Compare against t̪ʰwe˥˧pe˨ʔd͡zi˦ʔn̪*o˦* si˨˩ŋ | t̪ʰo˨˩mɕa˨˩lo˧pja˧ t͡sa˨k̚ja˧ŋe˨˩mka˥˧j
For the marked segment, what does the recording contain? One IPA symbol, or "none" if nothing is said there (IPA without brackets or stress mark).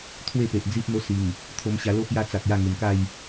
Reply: o˦